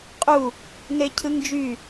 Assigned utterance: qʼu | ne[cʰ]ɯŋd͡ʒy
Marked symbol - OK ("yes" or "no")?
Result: yes